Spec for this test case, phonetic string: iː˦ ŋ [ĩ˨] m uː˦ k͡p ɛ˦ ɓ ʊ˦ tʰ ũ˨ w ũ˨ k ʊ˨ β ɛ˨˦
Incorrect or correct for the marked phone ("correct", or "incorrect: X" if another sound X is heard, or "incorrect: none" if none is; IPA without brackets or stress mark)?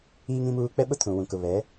incorrect: ĩ˦